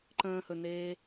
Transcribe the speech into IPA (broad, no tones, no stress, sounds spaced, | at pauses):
ǃ ə̃ː h ɵ n eː